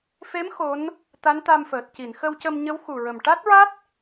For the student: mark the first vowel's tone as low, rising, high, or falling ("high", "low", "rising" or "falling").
rising